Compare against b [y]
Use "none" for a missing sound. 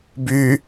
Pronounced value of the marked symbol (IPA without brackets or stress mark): y